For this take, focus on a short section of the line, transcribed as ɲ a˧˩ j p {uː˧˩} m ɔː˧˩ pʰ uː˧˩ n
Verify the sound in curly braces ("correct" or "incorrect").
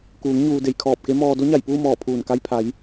incorrect